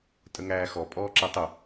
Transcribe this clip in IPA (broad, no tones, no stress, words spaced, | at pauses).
tʼəŋæːxɔ pʼɔːǁɛtˤʊ